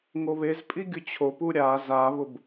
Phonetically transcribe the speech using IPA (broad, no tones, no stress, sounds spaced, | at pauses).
ŋ o β e z pʼ i ɡʲ ʊ t͡ɕʰ o p u ɾʲ a z a β ʊ b